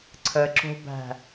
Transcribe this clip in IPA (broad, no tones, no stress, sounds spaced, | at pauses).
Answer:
ǀʰ ə ǁ o̤ b æ̤